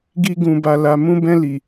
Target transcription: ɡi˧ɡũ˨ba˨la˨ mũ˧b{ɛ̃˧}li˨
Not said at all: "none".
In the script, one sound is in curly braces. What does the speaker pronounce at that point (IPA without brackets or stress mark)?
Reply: ɛ̃˧